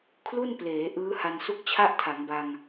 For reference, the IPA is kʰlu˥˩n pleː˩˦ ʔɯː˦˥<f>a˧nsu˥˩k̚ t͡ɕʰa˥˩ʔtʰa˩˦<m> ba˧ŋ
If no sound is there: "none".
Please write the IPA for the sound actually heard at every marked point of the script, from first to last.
h, ŋ

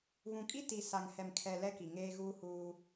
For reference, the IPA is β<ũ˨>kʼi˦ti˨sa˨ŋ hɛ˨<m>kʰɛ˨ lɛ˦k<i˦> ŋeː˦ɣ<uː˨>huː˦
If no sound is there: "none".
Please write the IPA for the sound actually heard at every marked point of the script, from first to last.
ũ˨, m, i˨, uː˦

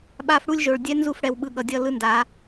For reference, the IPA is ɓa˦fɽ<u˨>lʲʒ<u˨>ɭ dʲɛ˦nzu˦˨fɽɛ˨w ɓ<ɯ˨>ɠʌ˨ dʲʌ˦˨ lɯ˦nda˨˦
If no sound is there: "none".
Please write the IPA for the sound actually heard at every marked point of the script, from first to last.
u˦, o˨, ɯ˨

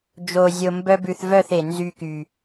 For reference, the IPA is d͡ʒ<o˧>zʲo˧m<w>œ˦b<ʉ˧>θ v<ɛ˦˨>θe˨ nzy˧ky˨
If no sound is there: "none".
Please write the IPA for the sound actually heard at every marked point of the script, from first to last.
o˧, b, ʉ˧, œ˦˨

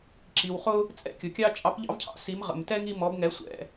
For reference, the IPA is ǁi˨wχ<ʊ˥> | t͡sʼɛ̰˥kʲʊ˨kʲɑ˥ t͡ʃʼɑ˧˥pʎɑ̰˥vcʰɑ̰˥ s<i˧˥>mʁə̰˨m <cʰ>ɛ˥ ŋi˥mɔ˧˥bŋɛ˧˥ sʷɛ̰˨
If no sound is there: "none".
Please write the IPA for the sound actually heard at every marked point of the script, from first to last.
ʊ˥, i˧˥, t

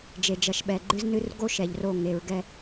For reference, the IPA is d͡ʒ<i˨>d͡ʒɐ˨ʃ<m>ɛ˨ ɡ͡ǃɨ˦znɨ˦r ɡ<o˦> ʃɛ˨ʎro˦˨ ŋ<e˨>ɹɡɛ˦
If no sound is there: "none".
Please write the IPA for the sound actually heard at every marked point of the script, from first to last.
e˨, ɓ, o˦, e˨

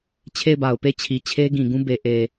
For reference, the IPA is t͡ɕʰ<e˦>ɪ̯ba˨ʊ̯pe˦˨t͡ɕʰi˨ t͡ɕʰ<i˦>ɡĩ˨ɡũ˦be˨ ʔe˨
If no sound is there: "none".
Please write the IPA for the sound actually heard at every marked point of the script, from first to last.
e˦˨, e˦

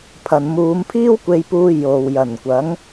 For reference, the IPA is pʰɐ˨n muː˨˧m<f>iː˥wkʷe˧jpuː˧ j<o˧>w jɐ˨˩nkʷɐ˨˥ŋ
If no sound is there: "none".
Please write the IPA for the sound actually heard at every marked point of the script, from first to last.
pʰ, o˨

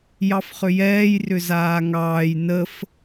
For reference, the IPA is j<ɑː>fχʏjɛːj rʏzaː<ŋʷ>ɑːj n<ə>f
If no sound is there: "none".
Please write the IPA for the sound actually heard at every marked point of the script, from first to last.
ɑ, ŋ, ə

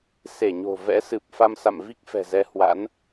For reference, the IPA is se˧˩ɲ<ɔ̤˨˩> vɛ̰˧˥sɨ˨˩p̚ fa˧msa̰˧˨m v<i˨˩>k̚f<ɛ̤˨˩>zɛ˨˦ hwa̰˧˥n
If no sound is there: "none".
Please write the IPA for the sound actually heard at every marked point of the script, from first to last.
o̤˨˩, i˦˥, ɛ̤˨˩

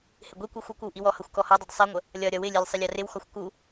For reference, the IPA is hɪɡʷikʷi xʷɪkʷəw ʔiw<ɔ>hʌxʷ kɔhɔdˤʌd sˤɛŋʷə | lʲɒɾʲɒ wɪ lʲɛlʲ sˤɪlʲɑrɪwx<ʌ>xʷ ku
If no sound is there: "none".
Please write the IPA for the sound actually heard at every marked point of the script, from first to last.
ɔ, ɒ

